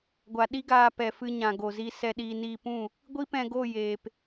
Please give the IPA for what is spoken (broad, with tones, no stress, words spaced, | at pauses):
ɡʷa˨ ɗi˦ɡaː˧ pɛ˨fɨ˧ ɲã˨ɡo˨zi˧ sɛ˧ɗiː˧niː˧pũ˦˨ | ɡʷi˦pɛ̃˧ɡo˦˨ jeː˨p